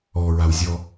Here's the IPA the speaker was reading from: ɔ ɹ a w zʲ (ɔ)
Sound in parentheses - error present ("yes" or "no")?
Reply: no